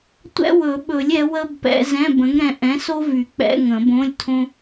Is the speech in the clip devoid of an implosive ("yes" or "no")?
no